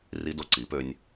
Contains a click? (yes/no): yes